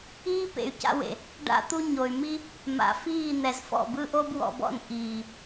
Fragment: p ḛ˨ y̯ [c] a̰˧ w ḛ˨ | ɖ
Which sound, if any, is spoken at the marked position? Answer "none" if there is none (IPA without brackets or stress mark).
c